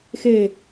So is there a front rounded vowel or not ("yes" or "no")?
no